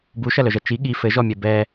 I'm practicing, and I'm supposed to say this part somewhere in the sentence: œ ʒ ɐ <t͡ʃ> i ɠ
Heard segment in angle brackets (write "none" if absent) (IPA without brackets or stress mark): t͡ʃ